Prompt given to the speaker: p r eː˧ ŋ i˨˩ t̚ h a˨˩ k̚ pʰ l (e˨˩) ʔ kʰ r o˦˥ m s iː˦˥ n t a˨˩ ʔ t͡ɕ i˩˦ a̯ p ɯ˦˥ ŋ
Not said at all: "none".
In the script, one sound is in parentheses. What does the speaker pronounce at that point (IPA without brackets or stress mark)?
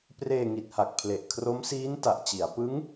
e˨˩